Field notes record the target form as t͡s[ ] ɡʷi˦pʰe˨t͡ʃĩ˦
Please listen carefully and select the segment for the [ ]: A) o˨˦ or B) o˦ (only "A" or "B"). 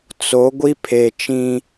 A